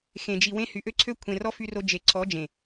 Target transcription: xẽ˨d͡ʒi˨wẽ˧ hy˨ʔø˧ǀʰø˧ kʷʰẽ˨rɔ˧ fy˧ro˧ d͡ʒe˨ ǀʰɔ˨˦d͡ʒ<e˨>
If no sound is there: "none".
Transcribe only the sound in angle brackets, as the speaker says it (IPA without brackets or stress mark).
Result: ẽ˨